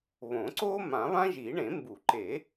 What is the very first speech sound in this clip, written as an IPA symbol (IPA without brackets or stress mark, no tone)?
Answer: β